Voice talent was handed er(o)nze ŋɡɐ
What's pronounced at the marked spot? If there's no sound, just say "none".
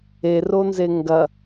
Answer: o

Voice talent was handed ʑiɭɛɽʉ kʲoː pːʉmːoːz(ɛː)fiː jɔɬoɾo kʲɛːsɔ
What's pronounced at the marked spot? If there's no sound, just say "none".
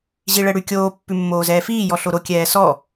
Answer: ɛː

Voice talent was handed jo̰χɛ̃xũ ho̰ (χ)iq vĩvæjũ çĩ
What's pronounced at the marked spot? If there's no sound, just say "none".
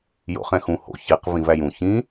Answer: ç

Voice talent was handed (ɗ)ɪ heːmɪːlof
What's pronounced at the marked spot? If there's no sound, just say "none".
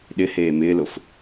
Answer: ɗ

